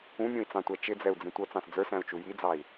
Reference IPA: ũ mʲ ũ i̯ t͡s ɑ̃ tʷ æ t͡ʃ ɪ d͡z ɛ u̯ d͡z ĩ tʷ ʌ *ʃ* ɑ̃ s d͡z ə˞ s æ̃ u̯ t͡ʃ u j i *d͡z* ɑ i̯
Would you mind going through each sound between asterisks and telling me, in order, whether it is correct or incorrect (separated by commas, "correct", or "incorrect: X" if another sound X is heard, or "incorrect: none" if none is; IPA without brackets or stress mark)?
incorrect: t͡s, correct